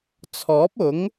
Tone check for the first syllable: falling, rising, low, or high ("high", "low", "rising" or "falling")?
rising